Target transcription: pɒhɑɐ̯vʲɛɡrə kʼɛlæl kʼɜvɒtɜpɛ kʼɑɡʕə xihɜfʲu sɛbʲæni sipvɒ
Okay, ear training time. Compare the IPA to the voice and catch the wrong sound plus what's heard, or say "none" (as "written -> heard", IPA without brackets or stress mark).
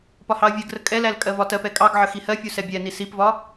none